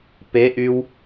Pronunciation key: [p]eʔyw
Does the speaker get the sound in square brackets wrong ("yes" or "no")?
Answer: no